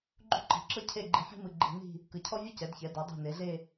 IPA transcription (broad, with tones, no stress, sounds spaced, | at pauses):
ɡ͡ǃ ṳ˥ ǃ i̤˧˩ ǁ ɤ˥ cʰ e˥˧ ɡ͡ǃ i˧ ħ i̤˥ m ɯ˧ ɡ͡ǃ i̤˧ n i̤˥˧ | k ɯ˧˩ cʰ ɔ˥ vʲ u˥ c ɛ˩˧ d ç ɛ˩˧ d a˩˧ dˤ ṳ˧˩ n e˩˧ ɮ e˥˧